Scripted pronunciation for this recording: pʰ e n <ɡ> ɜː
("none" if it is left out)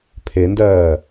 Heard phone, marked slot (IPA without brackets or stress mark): d